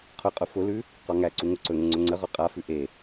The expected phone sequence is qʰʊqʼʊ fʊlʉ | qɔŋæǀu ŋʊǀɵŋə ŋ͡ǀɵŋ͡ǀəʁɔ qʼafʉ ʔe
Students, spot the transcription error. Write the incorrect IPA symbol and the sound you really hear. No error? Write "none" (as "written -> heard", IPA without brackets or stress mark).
none